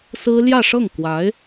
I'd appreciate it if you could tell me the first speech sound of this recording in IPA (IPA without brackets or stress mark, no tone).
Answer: s